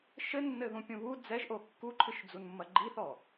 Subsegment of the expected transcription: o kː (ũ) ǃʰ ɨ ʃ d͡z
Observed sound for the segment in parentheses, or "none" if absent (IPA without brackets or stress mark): u